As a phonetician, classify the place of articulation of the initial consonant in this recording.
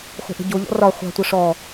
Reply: uvular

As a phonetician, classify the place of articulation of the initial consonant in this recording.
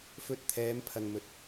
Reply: labial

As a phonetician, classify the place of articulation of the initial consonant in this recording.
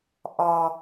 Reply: glottal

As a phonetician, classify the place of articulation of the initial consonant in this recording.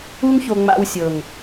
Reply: velar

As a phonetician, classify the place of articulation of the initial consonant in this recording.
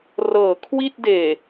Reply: alveolar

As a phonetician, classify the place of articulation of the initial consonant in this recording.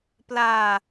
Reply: labial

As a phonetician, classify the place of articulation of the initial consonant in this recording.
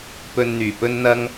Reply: labial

